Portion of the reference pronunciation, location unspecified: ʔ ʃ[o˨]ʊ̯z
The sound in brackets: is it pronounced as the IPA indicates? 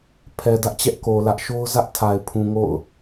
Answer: no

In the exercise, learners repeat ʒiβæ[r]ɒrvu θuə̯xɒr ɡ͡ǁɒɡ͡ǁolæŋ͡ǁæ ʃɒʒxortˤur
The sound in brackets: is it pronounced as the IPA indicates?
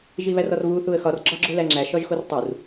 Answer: yes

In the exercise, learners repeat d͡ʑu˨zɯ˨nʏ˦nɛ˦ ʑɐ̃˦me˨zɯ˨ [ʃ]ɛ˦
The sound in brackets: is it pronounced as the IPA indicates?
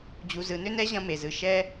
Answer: yes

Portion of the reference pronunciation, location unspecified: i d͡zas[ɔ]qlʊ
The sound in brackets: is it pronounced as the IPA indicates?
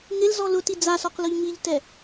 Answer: yes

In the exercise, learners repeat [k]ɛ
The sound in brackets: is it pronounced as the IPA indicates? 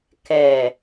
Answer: yes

